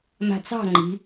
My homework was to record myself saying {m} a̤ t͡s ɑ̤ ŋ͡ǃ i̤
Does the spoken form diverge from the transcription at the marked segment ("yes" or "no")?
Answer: no